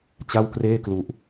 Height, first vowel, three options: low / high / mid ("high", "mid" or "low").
low